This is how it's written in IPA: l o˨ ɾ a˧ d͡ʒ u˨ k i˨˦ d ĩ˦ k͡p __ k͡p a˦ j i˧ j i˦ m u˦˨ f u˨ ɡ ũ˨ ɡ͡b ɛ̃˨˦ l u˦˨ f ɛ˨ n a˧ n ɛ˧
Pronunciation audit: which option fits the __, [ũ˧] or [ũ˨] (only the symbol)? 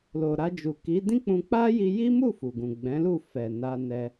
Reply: ũ˧